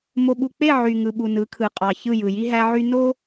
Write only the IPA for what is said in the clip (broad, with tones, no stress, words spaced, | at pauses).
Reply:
mo˨ɓu˨k͡pe˦˨ ʕy˨ŋɯ˨ ɓu˨nɯ˨˦kʰɯ˨ qʼɑ˨ çɯ˦˨ jɯ˨ji˦ɦæ˦ʕy˦ no˦